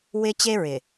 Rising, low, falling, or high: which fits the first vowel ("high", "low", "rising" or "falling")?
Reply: high